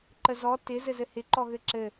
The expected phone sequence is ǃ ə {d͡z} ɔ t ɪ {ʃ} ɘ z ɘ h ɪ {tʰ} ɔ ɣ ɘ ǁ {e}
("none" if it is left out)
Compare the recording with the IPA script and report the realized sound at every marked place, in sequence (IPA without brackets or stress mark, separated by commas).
z, z, ǃ, ɘ